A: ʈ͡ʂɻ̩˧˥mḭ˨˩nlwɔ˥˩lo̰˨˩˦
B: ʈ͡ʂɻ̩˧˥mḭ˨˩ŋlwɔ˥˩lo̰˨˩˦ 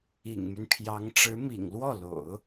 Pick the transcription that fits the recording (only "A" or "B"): B